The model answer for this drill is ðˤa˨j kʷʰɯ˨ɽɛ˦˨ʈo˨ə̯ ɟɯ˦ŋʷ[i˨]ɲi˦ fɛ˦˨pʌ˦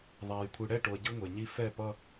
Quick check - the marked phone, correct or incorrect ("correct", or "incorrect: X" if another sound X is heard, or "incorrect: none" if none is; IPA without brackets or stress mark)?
incorrect: e˨